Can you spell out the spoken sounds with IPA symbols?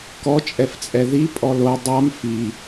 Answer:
kɔt͡ʃʼɛft͡sʼɛ ðipʼɔ lo dˤam fi

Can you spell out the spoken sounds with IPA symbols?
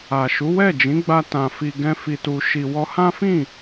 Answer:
a˨ʃu˨˦ wɛ˦˨d͡ʒĩ˨˦ɡ͡ba˧tã˨ fi˧ɡɛ̃˦fi˧tu˧ ʃi˧ wɔ˧hã˦fĩ˦˨

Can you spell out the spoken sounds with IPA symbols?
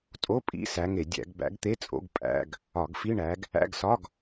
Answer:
tʼo˧˥˧pʼḭ˧˥˧ sæ˨˦ŋe˧˩˧ dʲæ̰˧˩˧ɡbæ̰˨˦ɡt̪e˧˥˧t͡sʼo̰˧˥˧ɡ pʼæ̰˧˥˧ɡ | ɒ˧˩˧ɡfi˧˥˧ɳæ˨˦ɡ | æ̰˧˥˧ɡsɒ˧˥˧ɡ

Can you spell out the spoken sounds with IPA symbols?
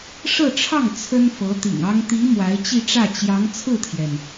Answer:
ʂɤ˥˧ʈ͡ʂʰɑ˥˩ŋ t͡sʰə˥nfɤ˧˥t̪ḭ˨˩ŋɑ˥ŋ t̪i˧˥ mwa˧˥ɪ̯t͡ɕi˥˧ʈ͡ʂä˥˩ t͡ɕjɑ˧˥ŋ t͡sʰɹ̩˥˩t̪ʰjɛ˩n

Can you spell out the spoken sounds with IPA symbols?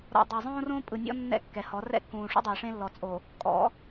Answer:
ɾɔ̰˨dˤɛ˨zˤõː˦ rõː˦ pʼɯ˨nʲɔ̰˦ nːɛ̰˦kːɛ˨hɔ˨˦ rɛ̰˦kːũː˨ʂṵ˦dˤiː˨ ʂẽ˦lːɔ˨t͡sʼo˨ | kʼɔ̰˨˦

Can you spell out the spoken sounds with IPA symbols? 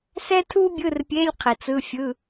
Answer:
sɛ˥tʰu˥bʲɯ˧˥˧rpʲe˧˥˧lʲ qʰi˨˩˦t͡sɯ˧˥˧fʲɯ˧˥˧

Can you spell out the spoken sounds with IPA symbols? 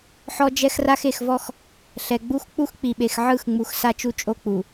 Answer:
ħɔ˦d͡ʒɛ˦xra˦x e˨xvɔ˦x | ɬɛ˨ ɡ͡bu˦x k͡pu˦xk͡pi˨ɓe˨x ʕɯ˦˨xŋ͡mu˨x sa˦t͡ʃu˦t͡ʃʼo˦k͡pu˨

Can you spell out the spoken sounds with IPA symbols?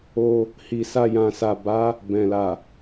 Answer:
o˧ | hi˨sa˧jã˨sa˨ ba˨˦ | bɛ̃˨la˨

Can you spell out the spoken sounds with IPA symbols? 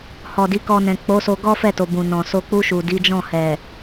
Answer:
hɔ˨di˨˦kɔ˧nɛ̃˨ k͡po˨˦so˧ ɡɔ˦fɛ˦˨to˨ bũ˨nɔ̃˨so˧ k͡pu˧ʃu˨ di˨˦d͡ʒɔ̃˦˨ hɛ˨

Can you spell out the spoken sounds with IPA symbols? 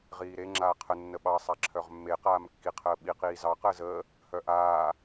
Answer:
ʁiːɾe ŋ͡ǁaːqʰə nːəɓɑ sˤaǁʰœʁmːe qaːmkːiqʰəːɓi qiːzɑ qəːzəː | hœʔaː

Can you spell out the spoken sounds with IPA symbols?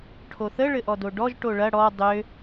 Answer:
ʈʰoθə ɭɘʔɔdoɖɔʒ ʈoɭɐ ɽɔ dˤø

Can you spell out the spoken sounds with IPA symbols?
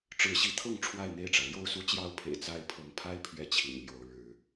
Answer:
ʈ͡ʂɻ̩˨˦ɕi˨˦t̪ʰɤ˥˨ŋ ʈ͡ʂʰwa˥˨ɪ̯n̪e˥˨ɪ̯ʈ͡ʂä˩ ljo˥˨ʊ̯su˥˨t͡ɕjɑ˥˨ʊ̯pʰḛ˨˩ɪ̯ t͡sa˦ɪ̯ pʰɤ˨˦ŋpʰa˦ɪ̯ pʰɥɛ˥˨t͡ɕʰḭ˨˩nljo˨˦ʊ̯ ɻɻ̩˨˦

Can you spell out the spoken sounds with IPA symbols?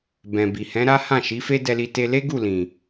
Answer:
bɛ̃˨bi˨ hɛ̃˨˦ ɾa˦hã˦˨ʃi˨˦ fe˦dɛ˧li˧ te˧le˦ɡu˦˨lĩ˨

